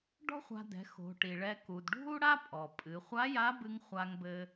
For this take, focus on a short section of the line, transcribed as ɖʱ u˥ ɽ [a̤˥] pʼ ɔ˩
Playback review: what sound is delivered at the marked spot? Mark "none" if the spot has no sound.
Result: a˥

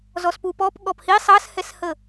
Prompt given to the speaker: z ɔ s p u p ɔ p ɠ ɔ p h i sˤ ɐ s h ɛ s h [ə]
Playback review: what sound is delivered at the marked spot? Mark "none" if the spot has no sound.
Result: ə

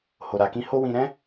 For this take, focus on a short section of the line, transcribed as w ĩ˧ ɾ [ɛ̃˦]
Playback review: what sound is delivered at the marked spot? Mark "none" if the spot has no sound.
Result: ɛ̃˦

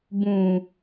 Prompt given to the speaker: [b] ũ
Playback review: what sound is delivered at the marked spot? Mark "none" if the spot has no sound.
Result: b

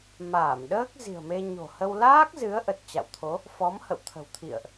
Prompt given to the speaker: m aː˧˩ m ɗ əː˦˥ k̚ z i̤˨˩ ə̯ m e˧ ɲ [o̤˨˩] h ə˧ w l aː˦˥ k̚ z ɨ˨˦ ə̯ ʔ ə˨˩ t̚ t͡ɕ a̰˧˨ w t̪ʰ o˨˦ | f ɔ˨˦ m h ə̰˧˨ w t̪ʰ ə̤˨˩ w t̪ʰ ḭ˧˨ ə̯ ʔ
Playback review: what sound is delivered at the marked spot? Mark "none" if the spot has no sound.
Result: o̤˨˩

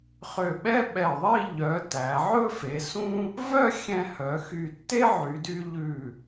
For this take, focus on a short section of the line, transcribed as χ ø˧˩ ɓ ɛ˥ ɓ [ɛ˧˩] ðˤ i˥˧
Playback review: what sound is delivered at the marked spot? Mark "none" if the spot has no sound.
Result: ɛ˧˩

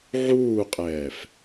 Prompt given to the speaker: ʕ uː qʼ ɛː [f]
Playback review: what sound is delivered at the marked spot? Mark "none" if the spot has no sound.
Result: f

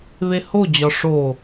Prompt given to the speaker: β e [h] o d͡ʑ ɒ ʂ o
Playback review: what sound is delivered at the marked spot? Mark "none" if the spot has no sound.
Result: h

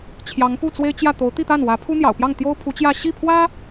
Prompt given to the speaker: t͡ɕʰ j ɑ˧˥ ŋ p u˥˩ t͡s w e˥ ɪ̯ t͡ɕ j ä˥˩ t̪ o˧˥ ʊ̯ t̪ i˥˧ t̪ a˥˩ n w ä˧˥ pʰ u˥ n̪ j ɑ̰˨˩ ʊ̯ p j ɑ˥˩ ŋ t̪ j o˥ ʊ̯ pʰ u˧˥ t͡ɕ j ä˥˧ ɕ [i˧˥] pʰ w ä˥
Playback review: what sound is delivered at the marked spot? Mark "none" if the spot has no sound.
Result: i˥˩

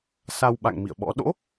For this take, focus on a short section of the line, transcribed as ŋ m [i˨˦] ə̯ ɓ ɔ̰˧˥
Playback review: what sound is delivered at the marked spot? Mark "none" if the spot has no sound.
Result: ḭ˧˨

